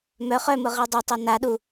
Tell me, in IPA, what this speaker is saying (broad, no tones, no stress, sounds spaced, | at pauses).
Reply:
m œ χ œ m ʊ ʁ i dˤ ʊ tˤ e n a ɗ u